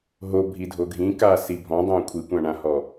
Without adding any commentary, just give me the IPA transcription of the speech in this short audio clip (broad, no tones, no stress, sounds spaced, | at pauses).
ɦ o bʱ i dʱ o ɡʱ ĩ k aː s i bʱ ɔ̃ dˤ õː kʷʰ i kʷ ã ɳ ã h ɔ